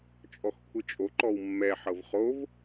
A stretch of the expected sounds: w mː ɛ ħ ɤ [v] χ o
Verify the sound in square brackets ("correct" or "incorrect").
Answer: correct